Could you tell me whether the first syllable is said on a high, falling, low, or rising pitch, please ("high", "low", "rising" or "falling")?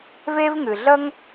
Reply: high